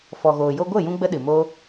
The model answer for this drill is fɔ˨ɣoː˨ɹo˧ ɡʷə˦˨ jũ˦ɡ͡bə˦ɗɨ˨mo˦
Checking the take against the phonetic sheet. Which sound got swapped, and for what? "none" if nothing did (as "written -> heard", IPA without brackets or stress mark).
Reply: ɹ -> j